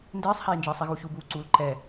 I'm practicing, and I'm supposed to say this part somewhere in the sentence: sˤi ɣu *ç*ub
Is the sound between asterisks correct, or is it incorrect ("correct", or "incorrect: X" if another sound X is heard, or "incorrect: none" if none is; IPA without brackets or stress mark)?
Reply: correct